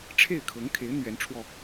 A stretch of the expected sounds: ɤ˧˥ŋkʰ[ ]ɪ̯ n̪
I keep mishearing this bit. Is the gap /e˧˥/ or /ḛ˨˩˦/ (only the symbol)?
e˧˥